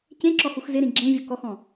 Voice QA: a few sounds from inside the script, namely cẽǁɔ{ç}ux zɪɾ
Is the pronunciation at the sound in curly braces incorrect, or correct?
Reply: incorrect: h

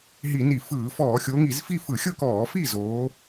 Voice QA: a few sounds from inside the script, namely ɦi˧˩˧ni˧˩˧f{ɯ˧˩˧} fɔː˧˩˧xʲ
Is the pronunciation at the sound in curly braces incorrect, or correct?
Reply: incorrect: ɯː˧˩˧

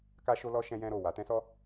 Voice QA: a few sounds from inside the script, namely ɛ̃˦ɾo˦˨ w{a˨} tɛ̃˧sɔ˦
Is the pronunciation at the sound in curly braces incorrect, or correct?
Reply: correct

